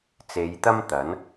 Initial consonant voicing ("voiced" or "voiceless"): voiceless